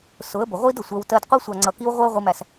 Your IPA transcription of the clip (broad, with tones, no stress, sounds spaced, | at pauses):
s ʊ˨˦ ə̯ b ʊ˨ ʁʷ i˦ d ʊ˨ sʷ ɜ˧ w t ɜ˧ d qʷ i˧ sʷ ɑ˨ ŋ͡ǀ ʌ˨ k i˧ w ʁʷ ɜ˦ ʊ̯ ʁʷ i˧ m æ˧ s